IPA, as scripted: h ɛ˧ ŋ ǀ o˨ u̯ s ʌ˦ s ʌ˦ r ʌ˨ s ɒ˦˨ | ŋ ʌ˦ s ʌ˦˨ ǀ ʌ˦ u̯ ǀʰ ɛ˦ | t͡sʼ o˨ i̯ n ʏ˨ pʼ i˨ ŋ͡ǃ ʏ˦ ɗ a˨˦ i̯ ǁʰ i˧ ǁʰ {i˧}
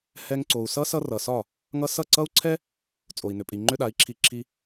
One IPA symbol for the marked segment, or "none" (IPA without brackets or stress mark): i˧